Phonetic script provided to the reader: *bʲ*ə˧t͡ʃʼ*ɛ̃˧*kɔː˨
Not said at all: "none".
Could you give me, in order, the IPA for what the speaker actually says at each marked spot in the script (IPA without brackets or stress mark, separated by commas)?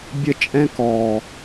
bʲ, ɛ̃˧